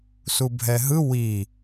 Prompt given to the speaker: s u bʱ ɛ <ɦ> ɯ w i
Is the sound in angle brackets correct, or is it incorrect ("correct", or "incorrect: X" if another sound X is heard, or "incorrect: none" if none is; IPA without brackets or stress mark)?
correct